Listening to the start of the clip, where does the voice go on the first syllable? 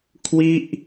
falling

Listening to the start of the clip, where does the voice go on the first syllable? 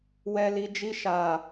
low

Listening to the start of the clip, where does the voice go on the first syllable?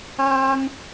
high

